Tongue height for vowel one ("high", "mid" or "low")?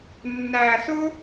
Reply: low